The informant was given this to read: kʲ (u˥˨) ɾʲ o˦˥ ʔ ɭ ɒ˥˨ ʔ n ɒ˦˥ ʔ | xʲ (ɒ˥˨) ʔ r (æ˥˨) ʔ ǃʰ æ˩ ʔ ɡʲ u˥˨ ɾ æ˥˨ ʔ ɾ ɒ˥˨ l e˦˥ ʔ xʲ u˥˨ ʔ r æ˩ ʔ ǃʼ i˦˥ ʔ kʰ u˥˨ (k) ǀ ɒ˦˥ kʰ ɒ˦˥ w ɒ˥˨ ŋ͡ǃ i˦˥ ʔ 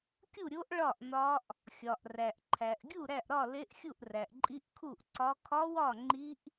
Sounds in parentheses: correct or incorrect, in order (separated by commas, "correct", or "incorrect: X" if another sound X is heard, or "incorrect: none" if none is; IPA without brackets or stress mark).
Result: correct, incorrect: ɒ˩, incorrect: æ˩, incorrect: ʔ